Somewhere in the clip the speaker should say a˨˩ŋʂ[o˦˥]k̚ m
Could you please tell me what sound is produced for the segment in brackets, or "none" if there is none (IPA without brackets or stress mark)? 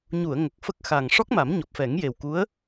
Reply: ɔ˦˥